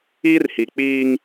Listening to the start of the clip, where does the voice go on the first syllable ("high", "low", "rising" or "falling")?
high